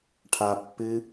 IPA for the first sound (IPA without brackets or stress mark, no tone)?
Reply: ʈʰ